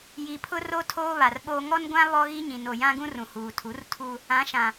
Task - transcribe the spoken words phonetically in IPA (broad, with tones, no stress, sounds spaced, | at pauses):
j i˨ pʰ ʊ˦ r o˦ tʰ oː˦ β a˨ r ɓ oː˦ ŋ ɔ˦ n ɡʷ ã˦ β ɔ˦ ɣ i˦ ɲ ĩ˨ n o˨ j ã˦ ɡ ũ˦ r ũ˨ h uː˨ tʰ u˨˦ r tʰ u˦ | ã˨˦ ʃ ã˨